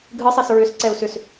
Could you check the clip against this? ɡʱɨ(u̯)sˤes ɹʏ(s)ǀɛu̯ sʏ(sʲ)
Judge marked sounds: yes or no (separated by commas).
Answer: no, yes, no